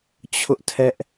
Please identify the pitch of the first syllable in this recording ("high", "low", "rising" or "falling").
high